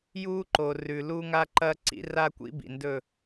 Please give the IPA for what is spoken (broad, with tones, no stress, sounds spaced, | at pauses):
j uː˦ ǃ o˨ r ʉ˨ l uː˦ ŋ a˦ ǃ ɐː˦ ǀ ḭ˦ r a˦ kʷ ḭ˦ b ḭ˨ n d ɵ˦˨